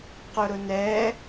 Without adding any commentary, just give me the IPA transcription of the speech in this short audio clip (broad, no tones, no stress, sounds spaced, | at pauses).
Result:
q ʊ ɾ ʊ n ɛ